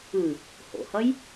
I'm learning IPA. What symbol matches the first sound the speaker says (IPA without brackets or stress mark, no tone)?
ɯ